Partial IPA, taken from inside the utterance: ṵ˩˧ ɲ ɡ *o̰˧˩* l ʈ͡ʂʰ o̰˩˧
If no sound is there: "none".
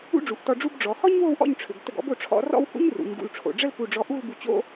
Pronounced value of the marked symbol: ṵ˧˩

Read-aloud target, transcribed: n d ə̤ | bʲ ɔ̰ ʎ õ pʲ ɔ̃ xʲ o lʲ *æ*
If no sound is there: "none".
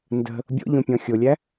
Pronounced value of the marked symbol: æ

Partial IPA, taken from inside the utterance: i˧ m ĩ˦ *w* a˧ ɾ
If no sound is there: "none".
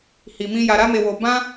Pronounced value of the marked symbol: j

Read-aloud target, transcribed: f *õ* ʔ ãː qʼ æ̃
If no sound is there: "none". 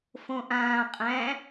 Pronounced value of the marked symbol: õ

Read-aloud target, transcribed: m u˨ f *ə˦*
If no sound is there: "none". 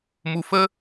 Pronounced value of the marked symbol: ə˦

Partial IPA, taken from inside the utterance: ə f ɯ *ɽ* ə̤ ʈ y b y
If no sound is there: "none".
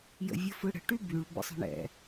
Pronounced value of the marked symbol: ɽ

